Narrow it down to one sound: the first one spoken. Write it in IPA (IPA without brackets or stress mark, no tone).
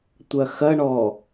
tʷ